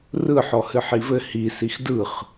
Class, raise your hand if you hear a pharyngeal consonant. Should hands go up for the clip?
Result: yes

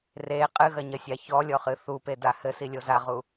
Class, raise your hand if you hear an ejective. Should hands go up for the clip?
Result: yes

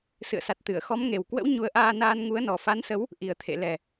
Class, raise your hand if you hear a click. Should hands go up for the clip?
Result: no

